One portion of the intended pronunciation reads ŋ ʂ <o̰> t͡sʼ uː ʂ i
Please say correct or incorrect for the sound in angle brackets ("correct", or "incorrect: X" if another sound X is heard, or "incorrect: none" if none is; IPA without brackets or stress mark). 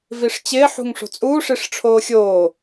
incorrect: o̤